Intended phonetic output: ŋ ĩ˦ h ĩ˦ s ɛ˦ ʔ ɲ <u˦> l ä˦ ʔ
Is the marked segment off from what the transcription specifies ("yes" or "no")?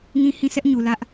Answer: yes